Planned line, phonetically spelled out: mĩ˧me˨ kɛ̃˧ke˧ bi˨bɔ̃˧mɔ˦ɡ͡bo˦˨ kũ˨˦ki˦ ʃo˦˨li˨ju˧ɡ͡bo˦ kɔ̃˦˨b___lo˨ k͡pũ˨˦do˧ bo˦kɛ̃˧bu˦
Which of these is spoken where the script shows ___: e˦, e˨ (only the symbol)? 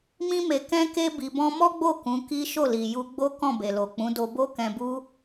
e˨